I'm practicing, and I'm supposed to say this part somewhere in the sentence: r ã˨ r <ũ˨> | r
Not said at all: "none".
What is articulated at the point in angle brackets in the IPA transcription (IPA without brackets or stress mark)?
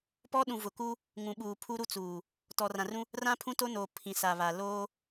ũ˦